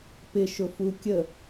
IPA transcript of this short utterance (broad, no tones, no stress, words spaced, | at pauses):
pɪʃʊfu kʲə